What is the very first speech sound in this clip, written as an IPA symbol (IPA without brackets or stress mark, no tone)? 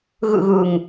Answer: ɣ